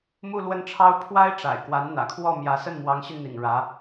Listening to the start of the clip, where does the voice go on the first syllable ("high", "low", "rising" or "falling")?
falling